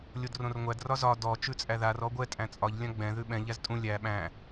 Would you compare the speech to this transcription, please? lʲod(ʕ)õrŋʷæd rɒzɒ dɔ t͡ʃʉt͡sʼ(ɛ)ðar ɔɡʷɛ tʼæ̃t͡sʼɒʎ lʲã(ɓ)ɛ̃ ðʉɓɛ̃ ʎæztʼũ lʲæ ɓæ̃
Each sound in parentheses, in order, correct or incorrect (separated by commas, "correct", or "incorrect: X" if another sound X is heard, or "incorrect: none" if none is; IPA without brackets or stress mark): incorrect: r, incorrect: æ, incorrect: ɡ͡b